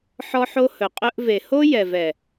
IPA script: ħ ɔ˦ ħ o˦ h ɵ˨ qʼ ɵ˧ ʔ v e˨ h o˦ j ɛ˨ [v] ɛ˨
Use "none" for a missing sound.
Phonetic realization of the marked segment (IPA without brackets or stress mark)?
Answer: v